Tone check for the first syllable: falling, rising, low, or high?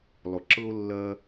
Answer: low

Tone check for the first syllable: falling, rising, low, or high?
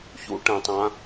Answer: high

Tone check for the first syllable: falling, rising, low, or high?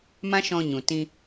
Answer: high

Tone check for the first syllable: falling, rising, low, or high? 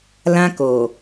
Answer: high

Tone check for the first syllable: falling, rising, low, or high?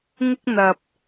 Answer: high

